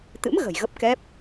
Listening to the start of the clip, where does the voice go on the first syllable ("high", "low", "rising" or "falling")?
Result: rising